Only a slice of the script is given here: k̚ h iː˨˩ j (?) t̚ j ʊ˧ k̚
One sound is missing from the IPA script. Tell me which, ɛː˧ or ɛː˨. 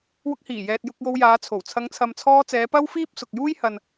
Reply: ɛː˨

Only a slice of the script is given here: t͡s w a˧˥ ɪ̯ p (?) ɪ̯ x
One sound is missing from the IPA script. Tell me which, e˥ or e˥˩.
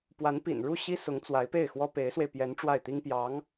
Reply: e˥˩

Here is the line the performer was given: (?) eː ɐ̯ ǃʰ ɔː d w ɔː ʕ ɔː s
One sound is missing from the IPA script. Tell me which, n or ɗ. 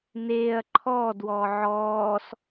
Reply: n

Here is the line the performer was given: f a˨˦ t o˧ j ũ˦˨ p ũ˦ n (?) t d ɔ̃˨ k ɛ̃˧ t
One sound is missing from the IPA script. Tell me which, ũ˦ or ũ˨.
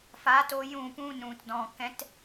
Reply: ũ˨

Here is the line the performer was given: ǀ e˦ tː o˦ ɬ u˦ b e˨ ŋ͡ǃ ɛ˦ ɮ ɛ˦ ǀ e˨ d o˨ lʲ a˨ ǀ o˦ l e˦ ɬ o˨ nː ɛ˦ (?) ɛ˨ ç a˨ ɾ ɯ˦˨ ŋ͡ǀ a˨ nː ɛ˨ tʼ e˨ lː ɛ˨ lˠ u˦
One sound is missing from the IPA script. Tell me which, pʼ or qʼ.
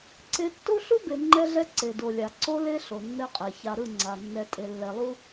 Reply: qʼ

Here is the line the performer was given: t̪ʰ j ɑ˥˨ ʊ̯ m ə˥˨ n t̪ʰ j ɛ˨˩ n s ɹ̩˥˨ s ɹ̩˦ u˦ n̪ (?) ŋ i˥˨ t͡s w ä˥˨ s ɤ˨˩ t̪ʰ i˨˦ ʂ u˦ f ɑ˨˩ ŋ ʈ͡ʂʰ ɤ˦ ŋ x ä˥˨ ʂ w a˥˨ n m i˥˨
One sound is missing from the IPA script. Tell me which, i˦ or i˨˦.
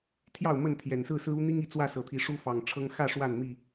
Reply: i˦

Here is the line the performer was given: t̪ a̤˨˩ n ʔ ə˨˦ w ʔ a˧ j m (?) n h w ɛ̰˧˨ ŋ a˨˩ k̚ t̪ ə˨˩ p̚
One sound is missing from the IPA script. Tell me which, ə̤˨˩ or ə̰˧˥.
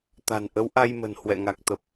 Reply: ə̤˨˩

